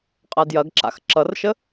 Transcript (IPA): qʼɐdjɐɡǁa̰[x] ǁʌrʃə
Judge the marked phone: correct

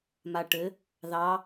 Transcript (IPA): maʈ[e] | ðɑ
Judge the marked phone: incorrect: ɘ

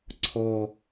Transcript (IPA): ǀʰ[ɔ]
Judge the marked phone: correct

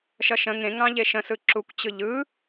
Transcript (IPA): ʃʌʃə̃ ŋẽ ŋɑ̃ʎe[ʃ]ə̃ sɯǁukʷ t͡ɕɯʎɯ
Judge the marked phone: correct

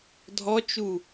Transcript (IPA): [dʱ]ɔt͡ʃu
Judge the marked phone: correct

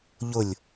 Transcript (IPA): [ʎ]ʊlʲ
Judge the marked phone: correct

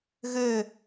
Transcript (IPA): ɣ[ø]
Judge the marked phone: correct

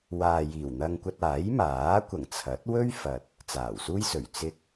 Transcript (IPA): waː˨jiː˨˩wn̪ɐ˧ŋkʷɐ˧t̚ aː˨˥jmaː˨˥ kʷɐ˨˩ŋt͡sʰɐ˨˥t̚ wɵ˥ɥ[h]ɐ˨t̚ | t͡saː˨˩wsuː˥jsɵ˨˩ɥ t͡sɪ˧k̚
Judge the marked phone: incorrect: f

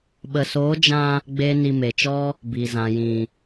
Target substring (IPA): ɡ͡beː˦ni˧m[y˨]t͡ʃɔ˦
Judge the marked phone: incorrect: e˨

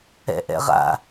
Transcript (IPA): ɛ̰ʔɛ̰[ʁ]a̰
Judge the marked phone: correct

